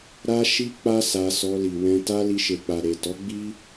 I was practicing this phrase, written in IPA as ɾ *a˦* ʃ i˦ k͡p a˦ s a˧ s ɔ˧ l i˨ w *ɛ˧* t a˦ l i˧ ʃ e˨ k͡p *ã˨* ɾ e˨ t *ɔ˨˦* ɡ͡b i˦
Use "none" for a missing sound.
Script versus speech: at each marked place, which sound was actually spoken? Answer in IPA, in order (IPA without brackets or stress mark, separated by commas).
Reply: a˦, ɛ̃˧, a˨, ɔ˨˦